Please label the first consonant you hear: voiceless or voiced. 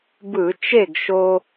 voiced